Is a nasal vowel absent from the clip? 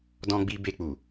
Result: no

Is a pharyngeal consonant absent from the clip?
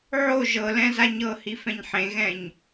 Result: no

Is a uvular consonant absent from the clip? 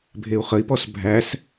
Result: no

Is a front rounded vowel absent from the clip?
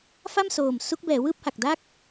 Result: yes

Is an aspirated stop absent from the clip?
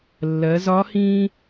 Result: yes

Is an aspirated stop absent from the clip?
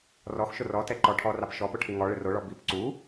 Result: no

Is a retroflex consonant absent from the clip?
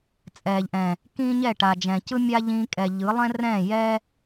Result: no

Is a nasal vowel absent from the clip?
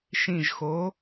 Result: no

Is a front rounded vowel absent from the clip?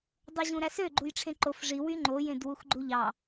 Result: no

